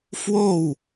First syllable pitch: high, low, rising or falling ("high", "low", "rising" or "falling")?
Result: falling